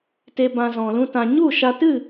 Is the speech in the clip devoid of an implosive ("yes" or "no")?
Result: yes